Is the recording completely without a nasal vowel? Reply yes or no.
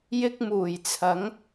yes